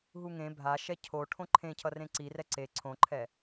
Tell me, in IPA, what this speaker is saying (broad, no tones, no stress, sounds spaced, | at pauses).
ɦ u ŋ ẽ bʱ a ʃ ɛ cʰ o ʈʰ õ ǃʰ ẽ cʰ ʌ r ẽ ǀ i r ɛ ǀ e ǀʰ õ ǃʰ ɛ